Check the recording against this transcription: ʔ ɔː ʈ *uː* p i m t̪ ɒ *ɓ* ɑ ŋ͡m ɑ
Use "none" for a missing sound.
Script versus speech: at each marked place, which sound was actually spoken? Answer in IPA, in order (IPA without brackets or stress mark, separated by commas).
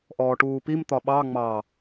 uː, ɓ